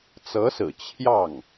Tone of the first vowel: rising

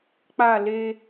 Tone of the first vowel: falling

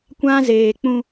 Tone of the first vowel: high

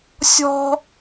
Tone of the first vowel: high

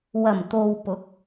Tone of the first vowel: low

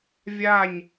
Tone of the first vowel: falling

